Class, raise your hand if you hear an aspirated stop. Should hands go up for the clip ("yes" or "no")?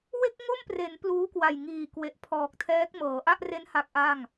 yes